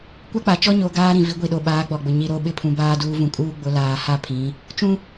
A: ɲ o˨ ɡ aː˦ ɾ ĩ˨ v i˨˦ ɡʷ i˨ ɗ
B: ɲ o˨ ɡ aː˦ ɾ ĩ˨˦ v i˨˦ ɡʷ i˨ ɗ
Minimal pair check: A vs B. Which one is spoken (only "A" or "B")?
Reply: A